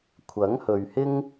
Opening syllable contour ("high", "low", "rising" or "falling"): rising